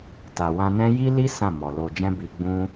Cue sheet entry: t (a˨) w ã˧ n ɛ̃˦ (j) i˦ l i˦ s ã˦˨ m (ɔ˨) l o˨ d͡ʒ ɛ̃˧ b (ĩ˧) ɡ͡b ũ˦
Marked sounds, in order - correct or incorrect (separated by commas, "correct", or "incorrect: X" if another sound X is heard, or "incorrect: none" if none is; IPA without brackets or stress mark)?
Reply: correct, correct, correct, incorrect: i˧